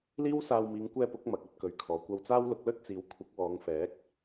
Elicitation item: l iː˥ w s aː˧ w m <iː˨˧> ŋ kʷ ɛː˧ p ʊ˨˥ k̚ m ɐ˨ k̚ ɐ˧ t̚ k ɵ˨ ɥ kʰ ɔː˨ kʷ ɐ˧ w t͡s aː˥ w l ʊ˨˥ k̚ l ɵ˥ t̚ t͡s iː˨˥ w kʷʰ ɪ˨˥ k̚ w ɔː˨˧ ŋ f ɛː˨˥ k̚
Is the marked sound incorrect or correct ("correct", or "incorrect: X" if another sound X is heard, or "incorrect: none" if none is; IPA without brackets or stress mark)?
correct